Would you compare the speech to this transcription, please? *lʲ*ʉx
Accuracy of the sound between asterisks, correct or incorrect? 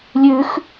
correct